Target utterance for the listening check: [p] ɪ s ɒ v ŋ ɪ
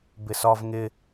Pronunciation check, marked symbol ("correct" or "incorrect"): incorrect